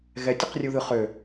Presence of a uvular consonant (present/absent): present